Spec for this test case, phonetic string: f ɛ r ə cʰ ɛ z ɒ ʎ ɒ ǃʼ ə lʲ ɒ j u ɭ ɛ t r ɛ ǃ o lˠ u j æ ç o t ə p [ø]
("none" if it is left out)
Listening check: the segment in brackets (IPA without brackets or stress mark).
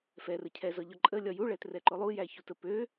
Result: ø